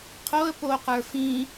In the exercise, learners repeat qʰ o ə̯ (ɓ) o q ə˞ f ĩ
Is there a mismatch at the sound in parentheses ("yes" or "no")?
yes